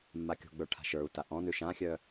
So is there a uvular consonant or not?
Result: no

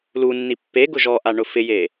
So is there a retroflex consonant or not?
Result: yes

